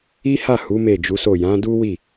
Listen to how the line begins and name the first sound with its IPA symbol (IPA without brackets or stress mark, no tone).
i